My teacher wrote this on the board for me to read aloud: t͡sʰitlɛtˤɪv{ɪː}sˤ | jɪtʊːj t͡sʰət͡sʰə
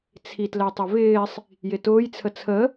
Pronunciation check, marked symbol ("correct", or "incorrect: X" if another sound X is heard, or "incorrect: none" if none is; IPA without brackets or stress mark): correct